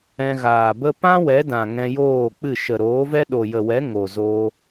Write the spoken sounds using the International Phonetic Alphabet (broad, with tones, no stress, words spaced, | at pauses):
ɛ̃˧ɣaː˨bə˦ pã˦ wɛ˨˦dã˨ ŋɛ̃˧joː˦˨k͡pɨ˦˨ ʃə˨ɾoː˨˦vɛ˦ ɗo˨jə˨wɛ˨˦ ŋo˨zo˧